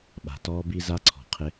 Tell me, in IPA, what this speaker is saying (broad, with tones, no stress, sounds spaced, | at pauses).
ɓ a̤˨ t ɔː˦ b i˦ z a˦ ǀʰ ɔ̤˨ qʰ ɪ˦